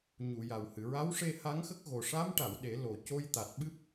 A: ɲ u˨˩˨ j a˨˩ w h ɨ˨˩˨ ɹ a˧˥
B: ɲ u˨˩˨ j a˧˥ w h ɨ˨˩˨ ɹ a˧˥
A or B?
A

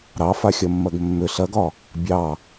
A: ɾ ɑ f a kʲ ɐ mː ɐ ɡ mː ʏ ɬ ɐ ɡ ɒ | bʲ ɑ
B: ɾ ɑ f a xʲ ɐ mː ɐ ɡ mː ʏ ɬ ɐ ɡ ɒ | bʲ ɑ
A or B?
B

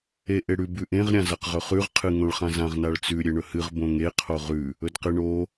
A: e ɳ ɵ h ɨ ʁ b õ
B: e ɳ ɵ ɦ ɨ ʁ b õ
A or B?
A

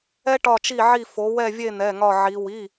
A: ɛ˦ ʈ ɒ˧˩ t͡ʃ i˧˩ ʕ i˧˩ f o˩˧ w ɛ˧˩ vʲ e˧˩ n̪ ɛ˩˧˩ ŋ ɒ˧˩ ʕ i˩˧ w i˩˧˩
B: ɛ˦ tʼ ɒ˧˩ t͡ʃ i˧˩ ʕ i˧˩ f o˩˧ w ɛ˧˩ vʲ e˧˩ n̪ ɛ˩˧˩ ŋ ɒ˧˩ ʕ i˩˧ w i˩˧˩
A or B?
A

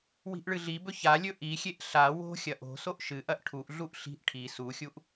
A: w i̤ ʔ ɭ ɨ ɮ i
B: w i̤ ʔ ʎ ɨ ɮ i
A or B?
A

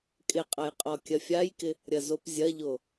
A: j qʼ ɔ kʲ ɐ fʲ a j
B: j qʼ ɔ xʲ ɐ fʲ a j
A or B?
A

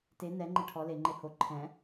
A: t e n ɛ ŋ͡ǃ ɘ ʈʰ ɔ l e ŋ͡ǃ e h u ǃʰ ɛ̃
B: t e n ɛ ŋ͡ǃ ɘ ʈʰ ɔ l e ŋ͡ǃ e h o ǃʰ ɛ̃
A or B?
B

